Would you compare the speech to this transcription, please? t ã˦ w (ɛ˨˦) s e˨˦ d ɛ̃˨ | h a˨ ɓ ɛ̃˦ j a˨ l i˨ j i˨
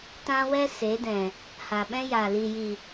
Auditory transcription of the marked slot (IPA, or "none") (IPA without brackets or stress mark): ɛ˦